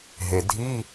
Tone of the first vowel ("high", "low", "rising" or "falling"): low